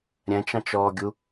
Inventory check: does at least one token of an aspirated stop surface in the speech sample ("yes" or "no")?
no